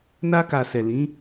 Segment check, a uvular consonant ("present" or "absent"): absent